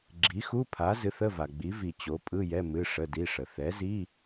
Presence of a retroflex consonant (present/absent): present